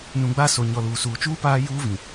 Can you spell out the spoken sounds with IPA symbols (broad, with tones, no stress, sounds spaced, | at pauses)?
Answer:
n ũ˨ ɡ͡b a˦˨ s o˨ ɲ ɔ˨ l uː˨ s uː˨ t͡ʃ uː˦ p aː˦ j uː˦ v ĩ˨